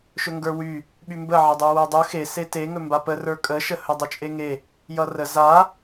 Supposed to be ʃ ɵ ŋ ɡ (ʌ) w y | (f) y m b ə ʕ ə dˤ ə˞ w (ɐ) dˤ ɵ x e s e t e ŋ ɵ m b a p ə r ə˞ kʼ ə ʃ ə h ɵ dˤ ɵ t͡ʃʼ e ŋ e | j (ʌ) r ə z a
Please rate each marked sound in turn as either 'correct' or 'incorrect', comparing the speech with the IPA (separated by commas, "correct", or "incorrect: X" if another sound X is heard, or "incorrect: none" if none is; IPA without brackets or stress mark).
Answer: incorrect: ə˞, incorrect: ɓ, incorrect: ə˞, correct